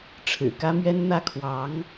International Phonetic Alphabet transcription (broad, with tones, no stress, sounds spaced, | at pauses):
ʈ͡ʂʰ ɻ̩˨˩ k ä˥ m ɥ ɛ˥ n n̪ ä˥ kʰ w ɑ˧˥ ŋ